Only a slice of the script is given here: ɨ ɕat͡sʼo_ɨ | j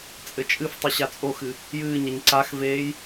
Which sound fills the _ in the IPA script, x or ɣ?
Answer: x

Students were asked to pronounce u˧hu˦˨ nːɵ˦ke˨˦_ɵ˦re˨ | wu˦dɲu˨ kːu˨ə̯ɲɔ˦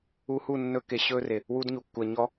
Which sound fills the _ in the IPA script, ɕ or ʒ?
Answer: ɕ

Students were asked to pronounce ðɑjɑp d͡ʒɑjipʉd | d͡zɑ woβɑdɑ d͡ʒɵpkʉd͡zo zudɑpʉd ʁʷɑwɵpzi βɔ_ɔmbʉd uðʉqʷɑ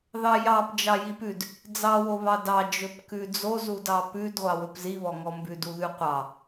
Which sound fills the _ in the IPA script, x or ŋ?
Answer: ŋ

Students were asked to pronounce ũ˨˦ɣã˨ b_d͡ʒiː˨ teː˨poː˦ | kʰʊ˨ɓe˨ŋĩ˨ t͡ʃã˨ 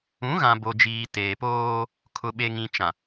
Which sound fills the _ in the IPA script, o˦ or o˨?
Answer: o˨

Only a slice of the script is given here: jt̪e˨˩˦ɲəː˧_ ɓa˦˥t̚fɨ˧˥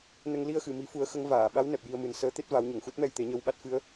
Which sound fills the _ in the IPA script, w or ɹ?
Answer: w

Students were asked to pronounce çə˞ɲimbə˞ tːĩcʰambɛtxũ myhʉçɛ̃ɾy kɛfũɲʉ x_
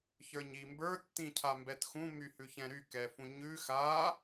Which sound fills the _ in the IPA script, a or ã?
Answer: a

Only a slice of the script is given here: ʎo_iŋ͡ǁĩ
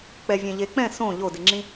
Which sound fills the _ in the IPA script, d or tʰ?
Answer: d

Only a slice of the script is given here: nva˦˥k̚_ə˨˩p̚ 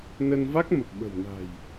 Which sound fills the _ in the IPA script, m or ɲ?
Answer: m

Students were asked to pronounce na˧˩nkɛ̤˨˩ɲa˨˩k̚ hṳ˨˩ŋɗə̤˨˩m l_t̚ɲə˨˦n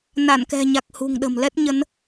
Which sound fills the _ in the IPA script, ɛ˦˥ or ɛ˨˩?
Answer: ɛ˦˥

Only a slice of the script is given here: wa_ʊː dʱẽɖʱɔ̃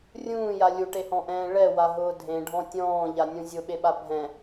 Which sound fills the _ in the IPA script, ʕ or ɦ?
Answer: ɦ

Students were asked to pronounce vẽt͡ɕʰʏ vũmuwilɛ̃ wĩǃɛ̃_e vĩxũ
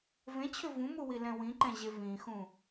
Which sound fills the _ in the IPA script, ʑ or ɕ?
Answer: ʑ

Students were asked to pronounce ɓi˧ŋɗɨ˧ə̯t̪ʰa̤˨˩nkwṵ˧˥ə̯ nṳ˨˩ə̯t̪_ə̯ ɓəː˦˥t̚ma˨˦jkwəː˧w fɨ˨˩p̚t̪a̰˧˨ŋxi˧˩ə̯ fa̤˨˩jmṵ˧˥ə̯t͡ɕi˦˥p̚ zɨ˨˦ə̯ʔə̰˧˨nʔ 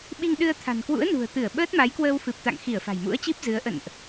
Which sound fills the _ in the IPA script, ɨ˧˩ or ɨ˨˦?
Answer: ɨ˧˩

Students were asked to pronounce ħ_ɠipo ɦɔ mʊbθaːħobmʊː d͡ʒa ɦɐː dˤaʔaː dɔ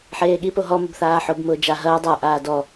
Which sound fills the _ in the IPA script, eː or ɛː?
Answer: eː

